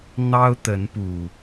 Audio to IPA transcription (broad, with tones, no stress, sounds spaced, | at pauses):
n̪ ɑ˦ ʊ̯ t̪ ə˨˦ n p u˨˩